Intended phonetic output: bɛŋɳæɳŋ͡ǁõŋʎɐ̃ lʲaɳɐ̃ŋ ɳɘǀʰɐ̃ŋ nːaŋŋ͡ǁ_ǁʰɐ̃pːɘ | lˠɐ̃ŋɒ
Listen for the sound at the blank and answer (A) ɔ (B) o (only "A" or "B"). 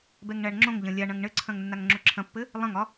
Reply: B